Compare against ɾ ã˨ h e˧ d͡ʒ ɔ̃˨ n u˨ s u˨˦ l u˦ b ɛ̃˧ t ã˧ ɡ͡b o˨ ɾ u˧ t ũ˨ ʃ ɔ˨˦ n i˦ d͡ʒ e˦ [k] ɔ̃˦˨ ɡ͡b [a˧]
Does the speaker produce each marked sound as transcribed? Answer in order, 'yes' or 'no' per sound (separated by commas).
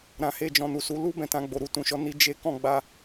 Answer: yes, yes